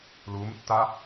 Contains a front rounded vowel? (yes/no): no